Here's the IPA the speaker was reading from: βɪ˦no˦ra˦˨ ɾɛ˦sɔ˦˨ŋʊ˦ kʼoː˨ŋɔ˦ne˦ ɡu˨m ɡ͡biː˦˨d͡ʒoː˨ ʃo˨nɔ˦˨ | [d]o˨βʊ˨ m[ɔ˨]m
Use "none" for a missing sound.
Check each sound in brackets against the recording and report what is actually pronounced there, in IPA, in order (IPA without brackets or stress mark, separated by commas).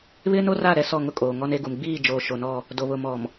d, ɔ˨